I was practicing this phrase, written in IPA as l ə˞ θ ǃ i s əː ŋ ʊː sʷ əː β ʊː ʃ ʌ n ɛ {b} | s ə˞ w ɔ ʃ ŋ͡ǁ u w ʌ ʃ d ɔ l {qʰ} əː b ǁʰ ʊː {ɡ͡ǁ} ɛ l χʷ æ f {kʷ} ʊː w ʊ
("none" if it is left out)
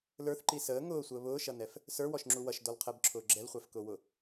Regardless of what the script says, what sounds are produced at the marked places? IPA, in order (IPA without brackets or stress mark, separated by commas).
f, qʰ, ɡ͡ǁ, k